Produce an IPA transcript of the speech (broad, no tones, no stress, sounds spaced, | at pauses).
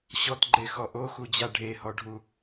ɕ ɔ t ɡ͡ǃ e x ɔ ʔ o x u d͡ʑ a ɖʱ e h ɔ ɖʱ u